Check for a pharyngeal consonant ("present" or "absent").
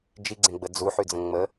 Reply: present